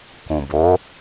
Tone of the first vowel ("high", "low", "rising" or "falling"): low